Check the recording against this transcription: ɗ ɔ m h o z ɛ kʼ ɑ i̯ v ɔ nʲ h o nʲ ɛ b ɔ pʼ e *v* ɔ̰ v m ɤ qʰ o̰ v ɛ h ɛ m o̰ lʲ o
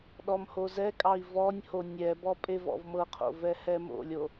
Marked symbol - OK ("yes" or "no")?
yes